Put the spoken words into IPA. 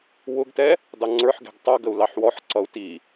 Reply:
w ʊ ɡ t ɛ | d ɑ ŋ͡ǀ ə˞ ħ ɡ ɛ̤ ɡ tˤ ʌ ɡ ə u̯ l ɑ ħ w ɔ ħ ǀ ʌ u̯ t i

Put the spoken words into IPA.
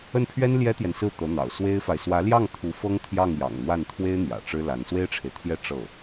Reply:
ə˥˩ n pʰ ɥ ɛ˥ n l j ɛ˥ t̪ j ɛ˨ n s ɹ̩˥˩ t̪ ɤ˧˥ n̪ ɑ̰˨˩ ʊ̯ s w e˥ ɪ̯ f a˨ ɪ̯ s w ä˧˥ l j ɑ˥˩ ŋ t̪ʰ u˧˥ f ɤ˥ ŋ t̪ʰ j ɑ˥˩ ŋ j ɑ̰˨˩ ŋ n̪ w a˥˩ n t̪ʰ w e˥ ɪ̯ n̪ j ä̰˨˩ ʈ͡ʂ ɻ̩˥ l a˧˥ n s w e˥ ɪ̯ ʈ͡ʂʰ e˨ ɪ̯ t̪ʰ j ɛ˥˧ ʈ͡ʂ ɤ˥˩

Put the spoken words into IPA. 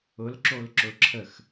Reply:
ʊ l ǁ o l ǁ ʊ ǁʰ ə x

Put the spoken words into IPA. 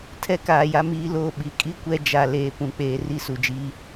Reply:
tʰ ɛ˦ k aː˨ j a˦ m iː˦ l oː˦˨ ɓ i˨ kʼ i˦ kʷ ɛ˦ d͡ʒ a˨ l eː˨ p ũ˨ k͡p eː˨ r i˦ s u˨ d͡ʒ iː˦

